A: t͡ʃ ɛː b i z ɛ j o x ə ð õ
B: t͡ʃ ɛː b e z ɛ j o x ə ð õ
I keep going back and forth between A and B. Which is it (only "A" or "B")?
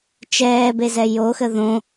B